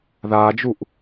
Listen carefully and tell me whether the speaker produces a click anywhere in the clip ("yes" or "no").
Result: no